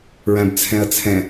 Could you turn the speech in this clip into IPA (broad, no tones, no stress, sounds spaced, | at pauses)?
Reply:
ɹ æ̃ b t͡sʰ ɛ̃ ɐ̯ t͡sʰ ɛ̃